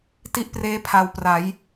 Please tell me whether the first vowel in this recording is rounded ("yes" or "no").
no